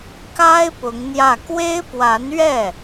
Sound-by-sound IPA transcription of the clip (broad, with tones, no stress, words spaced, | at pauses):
ka˥ɪ̯ pʊ˧˥ŋn̪jä˥˩ kwe˥ɪ̯pwa˧˥nɥɛ˥˩